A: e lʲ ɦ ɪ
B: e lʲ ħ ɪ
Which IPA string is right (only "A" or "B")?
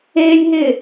A